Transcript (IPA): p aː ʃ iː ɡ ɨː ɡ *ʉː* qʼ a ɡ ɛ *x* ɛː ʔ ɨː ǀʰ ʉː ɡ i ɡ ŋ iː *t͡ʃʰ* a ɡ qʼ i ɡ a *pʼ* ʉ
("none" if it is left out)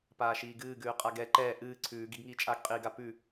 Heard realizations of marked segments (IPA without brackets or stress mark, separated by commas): ʉː, ǃ, t͡ʃʼ, p